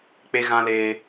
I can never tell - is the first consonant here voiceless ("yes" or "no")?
yes